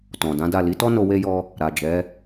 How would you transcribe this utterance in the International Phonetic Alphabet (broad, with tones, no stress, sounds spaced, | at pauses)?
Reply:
t ɔ̃˨ d ã˨˦ d a˦˨ l i˨˦ t ɔ˦ n o˧ w e˦ j ɔ˦ | ɾ a˨ d͡ʒ ɛ˨˦